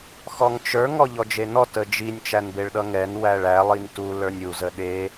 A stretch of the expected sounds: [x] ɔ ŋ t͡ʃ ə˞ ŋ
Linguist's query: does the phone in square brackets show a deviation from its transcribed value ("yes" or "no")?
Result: no